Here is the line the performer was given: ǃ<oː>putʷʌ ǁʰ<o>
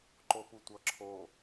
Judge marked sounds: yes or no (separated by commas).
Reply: no, yes